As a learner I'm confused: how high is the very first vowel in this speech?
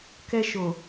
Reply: mid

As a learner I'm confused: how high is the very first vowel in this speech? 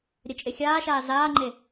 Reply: mid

